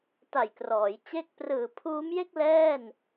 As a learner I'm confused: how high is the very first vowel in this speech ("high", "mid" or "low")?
low